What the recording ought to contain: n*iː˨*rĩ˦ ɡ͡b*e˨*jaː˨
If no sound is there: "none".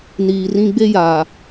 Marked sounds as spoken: iː˨, e˦

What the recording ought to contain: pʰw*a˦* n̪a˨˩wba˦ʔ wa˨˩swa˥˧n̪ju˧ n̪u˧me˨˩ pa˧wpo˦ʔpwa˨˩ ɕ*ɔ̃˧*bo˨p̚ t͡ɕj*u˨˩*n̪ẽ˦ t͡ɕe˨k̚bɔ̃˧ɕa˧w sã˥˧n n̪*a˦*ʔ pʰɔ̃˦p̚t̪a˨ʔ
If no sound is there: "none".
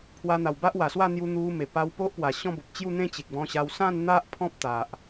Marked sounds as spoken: a˧, ɔ̃˦, u˥˧, a˦

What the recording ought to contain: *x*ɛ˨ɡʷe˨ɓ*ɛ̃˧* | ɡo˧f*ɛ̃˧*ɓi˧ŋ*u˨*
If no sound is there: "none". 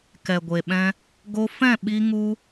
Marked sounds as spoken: k, ɛ̃˧, ɛ̃˦˨, u˧

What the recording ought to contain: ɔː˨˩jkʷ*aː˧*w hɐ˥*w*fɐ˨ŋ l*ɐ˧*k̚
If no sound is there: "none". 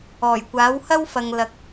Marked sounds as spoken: aː˨˥, w, ɐ˨

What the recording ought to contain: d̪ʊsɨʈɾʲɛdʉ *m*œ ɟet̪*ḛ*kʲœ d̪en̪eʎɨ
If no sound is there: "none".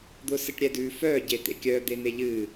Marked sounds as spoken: f, ḛ

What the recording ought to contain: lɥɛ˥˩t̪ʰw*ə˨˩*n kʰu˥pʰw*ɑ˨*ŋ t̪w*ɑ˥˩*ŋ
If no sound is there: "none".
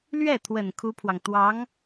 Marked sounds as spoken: ə˨˩, ɑ˨, ɑ˧˥

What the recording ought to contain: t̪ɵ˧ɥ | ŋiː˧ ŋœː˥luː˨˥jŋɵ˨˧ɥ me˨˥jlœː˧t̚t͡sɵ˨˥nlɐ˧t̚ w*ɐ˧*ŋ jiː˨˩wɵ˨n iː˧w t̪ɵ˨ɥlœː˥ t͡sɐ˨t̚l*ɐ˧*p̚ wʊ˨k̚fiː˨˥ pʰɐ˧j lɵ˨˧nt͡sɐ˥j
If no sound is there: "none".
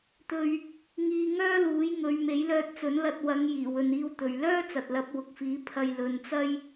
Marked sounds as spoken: ɐ˨˧, ɐ˨˥

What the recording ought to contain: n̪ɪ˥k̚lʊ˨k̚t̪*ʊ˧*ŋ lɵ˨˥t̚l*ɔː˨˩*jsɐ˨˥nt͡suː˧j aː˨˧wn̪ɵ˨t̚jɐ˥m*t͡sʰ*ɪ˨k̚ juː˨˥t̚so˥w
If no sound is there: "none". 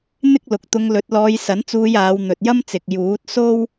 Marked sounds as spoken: ʊ˧, ɔː˧, t͡s

